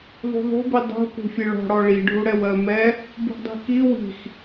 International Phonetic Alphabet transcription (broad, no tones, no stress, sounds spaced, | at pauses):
ðˤ ṳ ðˤ ṳ b i dˤ ṳ k ṳ fʲ ɛ ɭ ɔ̤ ɽ ɔ ɭ i ɖʱ u ɽ ɛ w ɜ m ɛ | b ṳ ɖ dˤ i̤ k i w i̤ x